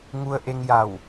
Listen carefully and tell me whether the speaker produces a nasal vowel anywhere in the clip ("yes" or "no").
no